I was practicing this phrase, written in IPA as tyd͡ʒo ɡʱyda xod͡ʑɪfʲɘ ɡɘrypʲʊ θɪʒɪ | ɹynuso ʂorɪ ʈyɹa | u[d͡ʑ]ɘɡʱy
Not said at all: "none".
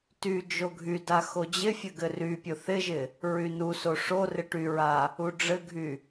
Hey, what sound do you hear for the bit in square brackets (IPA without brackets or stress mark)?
ɖ͡ʐ